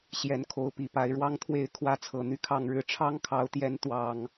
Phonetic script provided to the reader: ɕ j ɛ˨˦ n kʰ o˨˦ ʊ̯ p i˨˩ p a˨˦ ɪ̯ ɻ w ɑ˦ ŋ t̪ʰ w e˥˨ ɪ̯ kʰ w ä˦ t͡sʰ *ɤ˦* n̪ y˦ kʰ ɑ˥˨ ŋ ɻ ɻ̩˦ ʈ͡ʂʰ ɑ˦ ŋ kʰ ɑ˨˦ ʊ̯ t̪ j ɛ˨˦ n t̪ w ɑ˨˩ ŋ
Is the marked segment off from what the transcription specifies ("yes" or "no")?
yes